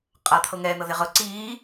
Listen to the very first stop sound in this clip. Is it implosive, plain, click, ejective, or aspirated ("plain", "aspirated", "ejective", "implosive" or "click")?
ejective